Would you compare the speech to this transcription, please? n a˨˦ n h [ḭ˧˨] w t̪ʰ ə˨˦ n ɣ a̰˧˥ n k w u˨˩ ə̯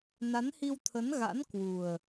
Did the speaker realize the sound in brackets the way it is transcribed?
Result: no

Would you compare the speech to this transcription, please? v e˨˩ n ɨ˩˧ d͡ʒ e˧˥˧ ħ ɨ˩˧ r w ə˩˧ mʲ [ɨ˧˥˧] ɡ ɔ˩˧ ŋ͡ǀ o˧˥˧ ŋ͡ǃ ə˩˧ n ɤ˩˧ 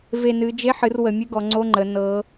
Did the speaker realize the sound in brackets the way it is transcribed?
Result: yes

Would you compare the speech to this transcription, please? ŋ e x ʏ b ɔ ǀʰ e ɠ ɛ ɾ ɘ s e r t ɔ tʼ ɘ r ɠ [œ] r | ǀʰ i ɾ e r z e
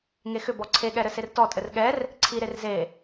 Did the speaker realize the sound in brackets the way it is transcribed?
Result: no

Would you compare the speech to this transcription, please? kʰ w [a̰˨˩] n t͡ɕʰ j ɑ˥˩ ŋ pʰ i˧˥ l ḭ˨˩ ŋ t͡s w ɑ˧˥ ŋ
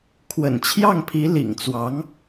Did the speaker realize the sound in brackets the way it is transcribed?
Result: no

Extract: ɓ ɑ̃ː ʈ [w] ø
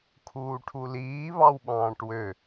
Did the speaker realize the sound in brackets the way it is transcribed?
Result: yes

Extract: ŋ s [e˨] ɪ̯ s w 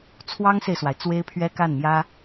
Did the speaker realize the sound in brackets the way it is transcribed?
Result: yes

